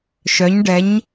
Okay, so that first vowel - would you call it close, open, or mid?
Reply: mid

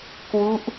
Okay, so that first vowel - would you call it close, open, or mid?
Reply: close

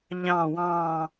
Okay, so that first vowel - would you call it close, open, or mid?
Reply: open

